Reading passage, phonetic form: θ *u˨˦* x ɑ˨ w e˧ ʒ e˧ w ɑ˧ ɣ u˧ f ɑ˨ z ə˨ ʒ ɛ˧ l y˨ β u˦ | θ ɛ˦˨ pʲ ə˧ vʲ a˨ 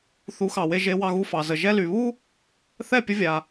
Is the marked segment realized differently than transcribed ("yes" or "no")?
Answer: no